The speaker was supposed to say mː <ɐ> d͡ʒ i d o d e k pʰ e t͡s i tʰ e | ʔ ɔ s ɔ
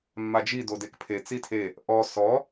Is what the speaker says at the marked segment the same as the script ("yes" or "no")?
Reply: no